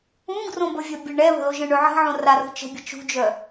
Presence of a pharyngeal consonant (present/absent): present